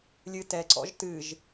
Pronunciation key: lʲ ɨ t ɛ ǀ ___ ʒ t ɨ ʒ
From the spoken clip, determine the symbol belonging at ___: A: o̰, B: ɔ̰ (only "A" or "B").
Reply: B